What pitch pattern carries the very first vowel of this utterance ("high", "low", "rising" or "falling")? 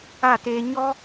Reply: falling